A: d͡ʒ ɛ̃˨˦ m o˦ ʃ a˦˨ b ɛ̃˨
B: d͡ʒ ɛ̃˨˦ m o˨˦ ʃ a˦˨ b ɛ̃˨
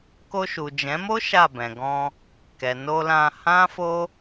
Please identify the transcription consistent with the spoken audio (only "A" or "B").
A